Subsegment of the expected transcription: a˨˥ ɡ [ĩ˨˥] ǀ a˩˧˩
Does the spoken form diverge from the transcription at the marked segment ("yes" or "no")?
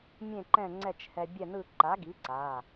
yes